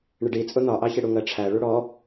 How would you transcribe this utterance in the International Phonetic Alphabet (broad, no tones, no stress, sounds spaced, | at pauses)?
ɳ ɪ ɖ i t͡sʼ ʊ n̪ ɒ ʔ ɑ ç ɪ ɽ u ŋ ɜ ʈ͡ʂʰ æ ɭ u ɽ ɔ